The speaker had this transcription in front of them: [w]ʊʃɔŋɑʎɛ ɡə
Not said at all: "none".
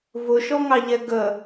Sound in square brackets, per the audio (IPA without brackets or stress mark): v